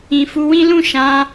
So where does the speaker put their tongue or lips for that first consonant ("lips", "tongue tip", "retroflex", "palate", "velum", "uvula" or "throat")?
lips